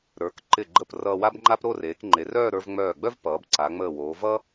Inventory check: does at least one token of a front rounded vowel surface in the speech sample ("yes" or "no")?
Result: yes